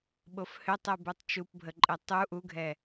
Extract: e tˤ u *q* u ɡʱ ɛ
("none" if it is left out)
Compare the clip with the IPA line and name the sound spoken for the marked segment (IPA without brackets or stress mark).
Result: ʔ